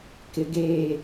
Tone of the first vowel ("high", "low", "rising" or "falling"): low